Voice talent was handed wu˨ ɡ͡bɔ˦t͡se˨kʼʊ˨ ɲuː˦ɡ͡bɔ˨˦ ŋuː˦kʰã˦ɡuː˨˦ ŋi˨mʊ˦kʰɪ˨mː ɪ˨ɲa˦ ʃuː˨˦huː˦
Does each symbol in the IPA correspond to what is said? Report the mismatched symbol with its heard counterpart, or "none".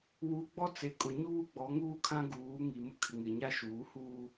mː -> ŋ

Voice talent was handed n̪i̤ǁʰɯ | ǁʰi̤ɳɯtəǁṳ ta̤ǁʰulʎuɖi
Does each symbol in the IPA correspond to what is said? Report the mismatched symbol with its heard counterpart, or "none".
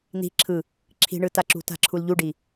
ə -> a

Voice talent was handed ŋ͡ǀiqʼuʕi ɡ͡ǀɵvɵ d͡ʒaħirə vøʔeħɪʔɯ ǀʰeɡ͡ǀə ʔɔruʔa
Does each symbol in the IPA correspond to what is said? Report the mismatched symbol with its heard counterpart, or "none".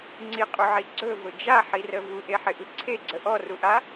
ø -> u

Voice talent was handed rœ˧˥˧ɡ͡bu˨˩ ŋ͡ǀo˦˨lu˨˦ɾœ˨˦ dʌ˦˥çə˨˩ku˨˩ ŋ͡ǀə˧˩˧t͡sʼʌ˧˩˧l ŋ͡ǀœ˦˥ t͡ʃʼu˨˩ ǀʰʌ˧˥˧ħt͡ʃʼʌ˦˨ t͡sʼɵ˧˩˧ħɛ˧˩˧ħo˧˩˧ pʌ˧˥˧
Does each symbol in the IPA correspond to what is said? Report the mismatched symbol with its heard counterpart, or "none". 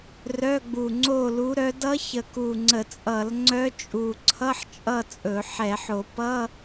none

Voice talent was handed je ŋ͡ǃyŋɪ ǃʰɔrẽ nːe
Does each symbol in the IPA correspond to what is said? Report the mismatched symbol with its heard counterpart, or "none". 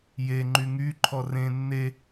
ɪ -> y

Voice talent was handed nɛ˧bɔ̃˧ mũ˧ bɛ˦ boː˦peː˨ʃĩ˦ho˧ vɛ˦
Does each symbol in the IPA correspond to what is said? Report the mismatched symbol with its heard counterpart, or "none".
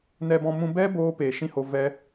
none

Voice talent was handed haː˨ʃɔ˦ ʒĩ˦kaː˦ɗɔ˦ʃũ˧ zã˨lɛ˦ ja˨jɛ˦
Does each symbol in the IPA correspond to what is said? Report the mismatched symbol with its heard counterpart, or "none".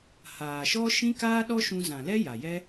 ʒ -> ʃ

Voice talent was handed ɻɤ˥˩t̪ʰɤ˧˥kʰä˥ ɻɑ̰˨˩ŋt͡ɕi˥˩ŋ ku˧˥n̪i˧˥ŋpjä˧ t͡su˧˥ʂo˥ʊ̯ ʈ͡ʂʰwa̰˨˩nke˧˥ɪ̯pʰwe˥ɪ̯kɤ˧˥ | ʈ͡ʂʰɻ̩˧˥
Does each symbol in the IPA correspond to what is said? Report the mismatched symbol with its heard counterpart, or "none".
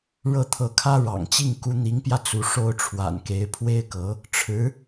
none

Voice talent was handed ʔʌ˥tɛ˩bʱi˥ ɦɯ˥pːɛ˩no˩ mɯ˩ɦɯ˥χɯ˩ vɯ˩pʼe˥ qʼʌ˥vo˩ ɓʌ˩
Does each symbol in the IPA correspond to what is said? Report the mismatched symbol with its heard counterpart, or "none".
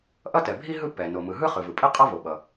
none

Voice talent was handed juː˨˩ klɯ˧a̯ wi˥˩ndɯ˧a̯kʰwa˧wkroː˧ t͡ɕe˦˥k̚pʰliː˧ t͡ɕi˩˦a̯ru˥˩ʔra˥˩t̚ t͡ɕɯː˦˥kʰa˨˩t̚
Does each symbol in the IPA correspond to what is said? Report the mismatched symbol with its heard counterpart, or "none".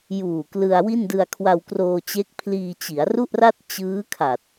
none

